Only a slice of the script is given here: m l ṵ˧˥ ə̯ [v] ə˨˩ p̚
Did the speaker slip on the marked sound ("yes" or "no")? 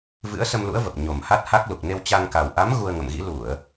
no